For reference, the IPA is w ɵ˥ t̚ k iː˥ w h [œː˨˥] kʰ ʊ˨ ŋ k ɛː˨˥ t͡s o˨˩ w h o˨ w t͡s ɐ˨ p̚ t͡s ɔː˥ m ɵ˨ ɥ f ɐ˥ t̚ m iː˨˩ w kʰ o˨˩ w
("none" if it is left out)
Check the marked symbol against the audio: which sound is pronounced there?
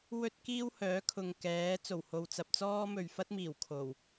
œː˨˥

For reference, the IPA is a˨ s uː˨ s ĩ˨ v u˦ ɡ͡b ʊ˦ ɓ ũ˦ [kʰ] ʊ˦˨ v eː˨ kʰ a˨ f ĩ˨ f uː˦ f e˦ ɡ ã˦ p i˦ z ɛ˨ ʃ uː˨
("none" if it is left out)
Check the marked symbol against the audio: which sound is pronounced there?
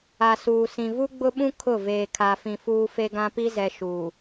kʰ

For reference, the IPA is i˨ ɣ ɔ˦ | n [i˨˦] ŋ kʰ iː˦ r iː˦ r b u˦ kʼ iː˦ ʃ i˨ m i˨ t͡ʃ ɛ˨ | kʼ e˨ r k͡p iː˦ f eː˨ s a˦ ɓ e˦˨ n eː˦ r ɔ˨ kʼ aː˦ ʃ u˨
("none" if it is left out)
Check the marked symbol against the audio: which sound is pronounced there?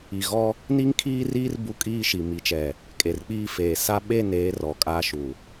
i˦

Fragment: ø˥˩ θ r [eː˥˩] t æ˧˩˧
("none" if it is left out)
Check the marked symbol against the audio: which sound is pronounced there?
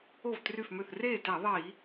eː˥˩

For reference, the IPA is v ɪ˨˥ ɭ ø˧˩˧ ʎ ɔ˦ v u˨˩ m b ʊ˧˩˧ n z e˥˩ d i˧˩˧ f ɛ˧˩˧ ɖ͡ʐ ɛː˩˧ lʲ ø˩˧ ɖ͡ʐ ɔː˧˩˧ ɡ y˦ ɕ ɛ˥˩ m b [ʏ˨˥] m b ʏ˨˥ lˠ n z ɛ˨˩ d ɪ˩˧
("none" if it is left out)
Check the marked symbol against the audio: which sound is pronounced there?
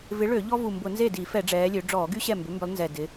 ʏ˨˥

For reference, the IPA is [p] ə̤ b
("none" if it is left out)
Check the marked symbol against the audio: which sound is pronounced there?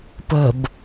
p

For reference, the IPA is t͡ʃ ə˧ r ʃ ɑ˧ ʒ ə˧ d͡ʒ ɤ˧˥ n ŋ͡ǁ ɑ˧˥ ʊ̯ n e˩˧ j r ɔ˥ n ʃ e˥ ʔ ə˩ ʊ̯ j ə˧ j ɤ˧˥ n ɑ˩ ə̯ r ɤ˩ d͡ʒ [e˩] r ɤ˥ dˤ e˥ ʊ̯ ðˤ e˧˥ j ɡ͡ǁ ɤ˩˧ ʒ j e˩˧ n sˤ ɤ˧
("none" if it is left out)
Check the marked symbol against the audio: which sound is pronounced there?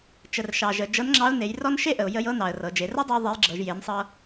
e˩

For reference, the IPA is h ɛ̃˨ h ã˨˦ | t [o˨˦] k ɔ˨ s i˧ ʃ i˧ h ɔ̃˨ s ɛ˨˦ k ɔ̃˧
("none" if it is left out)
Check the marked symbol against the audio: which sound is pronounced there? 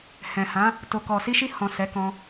o˨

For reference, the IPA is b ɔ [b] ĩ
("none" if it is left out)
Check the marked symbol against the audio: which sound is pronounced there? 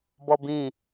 b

